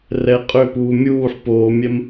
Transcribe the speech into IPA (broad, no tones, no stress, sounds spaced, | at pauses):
r ɛ qʼ ʏ p uː mʲ uː ħ p oː mʲ ɛ m